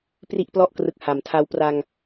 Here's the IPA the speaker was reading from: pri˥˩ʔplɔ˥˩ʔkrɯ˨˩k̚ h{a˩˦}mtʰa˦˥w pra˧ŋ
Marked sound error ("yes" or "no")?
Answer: no